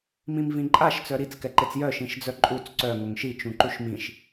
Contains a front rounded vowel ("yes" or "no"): yes